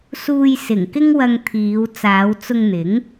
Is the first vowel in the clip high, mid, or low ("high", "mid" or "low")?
high